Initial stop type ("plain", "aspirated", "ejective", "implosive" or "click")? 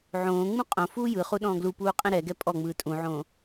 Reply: ejective